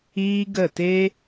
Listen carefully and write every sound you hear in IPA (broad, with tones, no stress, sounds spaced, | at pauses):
iː˦ ɡ ə˦˨ t e˦